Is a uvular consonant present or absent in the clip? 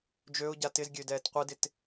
present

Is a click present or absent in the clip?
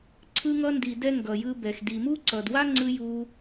present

